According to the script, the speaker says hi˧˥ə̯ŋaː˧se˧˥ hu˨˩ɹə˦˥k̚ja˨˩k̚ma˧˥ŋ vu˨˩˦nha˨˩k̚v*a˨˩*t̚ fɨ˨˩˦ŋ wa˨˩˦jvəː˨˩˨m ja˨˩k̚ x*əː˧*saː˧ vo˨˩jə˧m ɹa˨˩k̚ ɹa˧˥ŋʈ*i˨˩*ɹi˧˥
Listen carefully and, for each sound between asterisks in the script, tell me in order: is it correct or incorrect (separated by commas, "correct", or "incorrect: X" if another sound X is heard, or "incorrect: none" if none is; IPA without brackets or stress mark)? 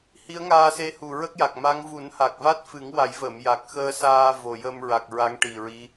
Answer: incorrect: a˦˥, correct, correct